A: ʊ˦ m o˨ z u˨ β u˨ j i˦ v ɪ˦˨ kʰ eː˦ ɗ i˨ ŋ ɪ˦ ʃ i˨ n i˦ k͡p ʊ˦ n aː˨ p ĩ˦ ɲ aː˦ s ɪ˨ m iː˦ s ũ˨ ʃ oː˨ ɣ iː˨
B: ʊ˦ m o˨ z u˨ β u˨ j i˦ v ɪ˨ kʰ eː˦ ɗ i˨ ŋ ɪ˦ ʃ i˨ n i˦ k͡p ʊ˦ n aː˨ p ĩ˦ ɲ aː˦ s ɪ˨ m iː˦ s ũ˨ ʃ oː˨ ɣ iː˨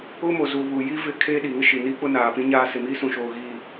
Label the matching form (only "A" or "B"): A